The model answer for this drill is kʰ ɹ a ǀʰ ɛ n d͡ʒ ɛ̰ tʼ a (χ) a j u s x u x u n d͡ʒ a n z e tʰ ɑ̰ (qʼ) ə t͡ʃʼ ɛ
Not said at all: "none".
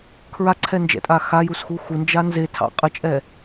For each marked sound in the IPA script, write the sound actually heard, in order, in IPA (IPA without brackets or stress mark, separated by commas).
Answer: x, qʼ